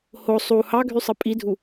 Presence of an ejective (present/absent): present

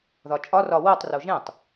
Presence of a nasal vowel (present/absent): present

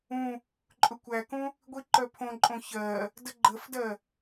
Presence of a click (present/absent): present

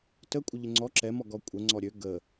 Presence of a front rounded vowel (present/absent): present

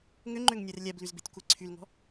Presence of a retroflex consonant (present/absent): absent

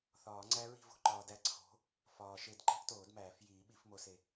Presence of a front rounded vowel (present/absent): absent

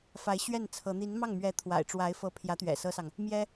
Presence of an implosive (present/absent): absent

